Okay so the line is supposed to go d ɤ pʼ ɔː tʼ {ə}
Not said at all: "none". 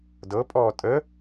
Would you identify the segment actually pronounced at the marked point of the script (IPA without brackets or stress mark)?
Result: ə